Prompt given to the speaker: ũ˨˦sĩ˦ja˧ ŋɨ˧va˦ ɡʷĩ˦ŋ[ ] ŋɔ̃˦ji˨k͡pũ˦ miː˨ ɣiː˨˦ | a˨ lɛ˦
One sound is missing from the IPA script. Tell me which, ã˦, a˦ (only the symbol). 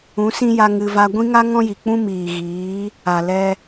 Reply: a˦